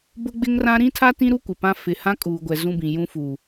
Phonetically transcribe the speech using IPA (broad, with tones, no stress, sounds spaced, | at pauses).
b ʊ˦ ɡ͡b ɪ˦ ŋ r ã˦ ɾ ĩ˦ tʰ a˦ t ĩ˦ ɾ u˦ kʷ ɪ˨ p ã˦ f ɪ˨ h ã˦ kʼ uː˨ ɡʷ ɛ˨ z ũ˦ b ĩ˨ j ũ˦ f u˨